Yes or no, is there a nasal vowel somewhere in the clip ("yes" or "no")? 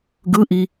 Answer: no